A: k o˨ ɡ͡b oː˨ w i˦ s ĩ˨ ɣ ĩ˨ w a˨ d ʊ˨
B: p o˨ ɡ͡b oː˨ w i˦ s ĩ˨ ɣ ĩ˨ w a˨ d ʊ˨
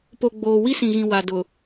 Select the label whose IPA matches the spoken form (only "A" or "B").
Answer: B